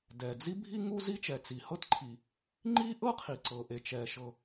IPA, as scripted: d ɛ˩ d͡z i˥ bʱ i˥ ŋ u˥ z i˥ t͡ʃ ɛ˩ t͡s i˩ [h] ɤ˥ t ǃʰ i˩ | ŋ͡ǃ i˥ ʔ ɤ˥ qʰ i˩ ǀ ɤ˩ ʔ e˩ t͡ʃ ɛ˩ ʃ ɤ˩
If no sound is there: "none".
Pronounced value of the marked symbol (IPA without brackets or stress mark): h